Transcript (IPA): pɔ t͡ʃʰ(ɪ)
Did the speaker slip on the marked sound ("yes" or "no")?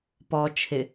no